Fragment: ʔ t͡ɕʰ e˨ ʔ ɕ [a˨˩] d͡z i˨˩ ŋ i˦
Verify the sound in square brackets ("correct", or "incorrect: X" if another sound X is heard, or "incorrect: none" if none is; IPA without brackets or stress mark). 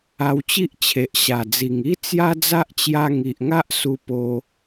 correct